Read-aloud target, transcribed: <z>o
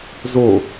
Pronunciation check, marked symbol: correct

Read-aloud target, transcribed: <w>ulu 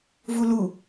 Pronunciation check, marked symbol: incorrect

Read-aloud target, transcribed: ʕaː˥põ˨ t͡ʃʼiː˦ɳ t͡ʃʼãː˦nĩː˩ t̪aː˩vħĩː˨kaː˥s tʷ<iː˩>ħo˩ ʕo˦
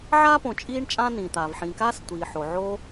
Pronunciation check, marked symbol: correct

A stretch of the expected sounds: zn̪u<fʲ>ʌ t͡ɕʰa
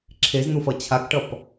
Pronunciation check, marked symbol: incorrect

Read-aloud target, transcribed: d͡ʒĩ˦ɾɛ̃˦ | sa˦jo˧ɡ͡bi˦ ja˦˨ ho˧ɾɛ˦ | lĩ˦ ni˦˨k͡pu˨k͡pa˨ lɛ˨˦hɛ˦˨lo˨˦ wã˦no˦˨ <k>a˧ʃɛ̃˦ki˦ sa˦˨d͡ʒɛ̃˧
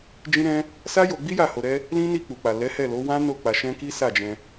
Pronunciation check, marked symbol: incorrect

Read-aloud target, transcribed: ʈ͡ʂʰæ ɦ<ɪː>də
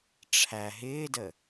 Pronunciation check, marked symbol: correct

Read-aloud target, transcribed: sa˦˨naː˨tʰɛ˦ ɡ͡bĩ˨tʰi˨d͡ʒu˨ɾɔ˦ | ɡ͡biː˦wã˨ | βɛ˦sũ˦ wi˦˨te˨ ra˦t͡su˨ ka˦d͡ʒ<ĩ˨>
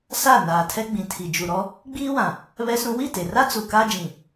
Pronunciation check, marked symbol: correct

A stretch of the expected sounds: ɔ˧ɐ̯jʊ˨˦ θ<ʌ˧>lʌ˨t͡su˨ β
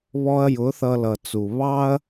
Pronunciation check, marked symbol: correct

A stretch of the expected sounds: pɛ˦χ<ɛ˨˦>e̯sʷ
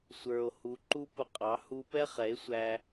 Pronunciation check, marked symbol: correct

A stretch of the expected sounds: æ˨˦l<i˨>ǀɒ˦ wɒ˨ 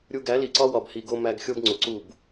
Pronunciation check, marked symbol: correct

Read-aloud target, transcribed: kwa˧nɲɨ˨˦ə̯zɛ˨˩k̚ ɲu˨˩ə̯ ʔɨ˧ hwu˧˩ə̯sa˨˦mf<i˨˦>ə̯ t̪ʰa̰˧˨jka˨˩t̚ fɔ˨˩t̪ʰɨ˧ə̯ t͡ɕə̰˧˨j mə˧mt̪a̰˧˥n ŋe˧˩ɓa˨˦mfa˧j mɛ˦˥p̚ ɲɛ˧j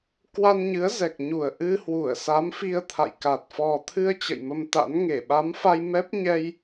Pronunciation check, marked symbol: incorrect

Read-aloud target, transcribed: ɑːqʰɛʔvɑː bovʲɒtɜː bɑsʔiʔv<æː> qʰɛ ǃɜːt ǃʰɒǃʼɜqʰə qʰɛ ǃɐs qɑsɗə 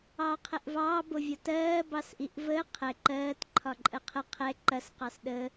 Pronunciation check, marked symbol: incorrect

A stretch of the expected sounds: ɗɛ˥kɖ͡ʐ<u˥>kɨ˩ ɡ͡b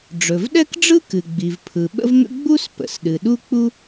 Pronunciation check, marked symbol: incorrect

